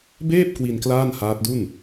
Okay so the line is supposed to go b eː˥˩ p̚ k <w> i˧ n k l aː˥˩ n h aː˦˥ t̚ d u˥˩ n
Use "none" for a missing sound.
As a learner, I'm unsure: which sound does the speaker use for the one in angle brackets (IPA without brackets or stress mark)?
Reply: w